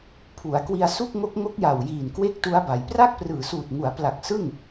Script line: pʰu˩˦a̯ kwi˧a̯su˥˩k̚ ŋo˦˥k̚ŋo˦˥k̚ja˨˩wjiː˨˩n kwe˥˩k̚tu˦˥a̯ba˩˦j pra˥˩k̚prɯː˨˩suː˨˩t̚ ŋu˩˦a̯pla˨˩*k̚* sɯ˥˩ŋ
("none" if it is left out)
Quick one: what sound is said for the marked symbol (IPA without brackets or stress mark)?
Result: k̚